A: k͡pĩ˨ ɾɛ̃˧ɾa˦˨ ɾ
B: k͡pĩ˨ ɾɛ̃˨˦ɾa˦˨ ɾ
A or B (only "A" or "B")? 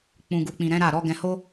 B